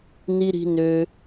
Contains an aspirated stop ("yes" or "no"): no